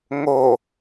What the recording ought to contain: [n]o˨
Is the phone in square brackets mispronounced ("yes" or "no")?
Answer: yes